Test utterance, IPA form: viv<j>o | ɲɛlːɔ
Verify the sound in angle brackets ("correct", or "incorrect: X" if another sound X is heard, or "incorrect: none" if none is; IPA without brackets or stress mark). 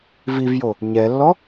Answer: correct